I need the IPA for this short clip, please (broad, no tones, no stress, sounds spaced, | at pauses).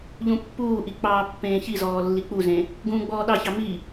ʎ ũ pː uː ʔ i k͡p ɑː pː ẽː ç i z ɔː lː i k͡p u z ẽ | ɡ ũː ɡ͡b ɔː ɗ ɑ ç ɑ m i